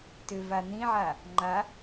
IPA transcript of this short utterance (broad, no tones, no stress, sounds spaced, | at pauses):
t ʏ v a n ĩ ʕ a | ŋ͡ǃ a